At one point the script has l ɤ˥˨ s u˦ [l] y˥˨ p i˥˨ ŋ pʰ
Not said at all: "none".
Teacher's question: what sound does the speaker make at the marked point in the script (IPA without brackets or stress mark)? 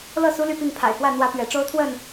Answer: l